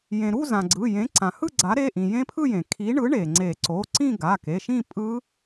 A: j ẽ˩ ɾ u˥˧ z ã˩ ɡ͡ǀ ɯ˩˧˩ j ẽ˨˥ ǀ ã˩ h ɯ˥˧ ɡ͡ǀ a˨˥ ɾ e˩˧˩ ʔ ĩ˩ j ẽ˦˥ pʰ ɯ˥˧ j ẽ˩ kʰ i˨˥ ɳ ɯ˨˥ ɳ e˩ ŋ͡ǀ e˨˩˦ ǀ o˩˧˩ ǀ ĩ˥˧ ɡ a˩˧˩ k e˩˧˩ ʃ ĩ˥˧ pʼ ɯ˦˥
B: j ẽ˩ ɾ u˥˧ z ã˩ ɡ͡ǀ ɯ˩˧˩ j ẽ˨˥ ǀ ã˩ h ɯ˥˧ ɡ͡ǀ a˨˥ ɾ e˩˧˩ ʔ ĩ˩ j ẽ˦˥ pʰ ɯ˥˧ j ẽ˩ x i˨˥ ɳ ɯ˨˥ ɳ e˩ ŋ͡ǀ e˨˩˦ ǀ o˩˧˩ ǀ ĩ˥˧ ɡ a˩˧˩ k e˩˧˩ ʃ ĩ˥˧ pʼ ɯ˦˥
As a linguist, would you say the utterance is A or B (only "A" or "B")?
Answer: A